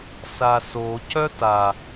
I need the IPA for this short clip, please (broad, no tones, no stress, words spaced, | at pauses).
saso cœta